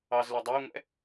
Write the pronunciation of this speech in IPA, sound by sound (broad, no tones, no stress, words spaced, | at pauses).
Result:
ɑzlø dˤoŋʷɛ̰